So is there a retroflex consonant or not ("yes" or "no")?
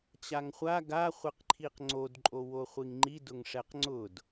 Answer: yes